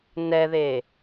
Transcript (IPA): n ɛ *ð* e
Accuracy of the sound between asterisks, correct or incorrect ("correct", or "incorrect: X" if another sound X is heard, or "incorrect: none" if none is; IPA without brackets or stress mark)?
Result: correct